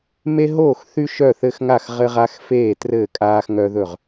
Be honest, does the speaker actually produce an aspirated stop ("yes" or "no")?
no